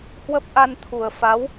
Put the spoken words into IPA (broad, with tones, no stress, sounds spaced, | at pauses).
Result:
h w ə˦˥ p̚ ʔ a˧ n t̪ʰ u˨˩ ə̯ f a˨˦ w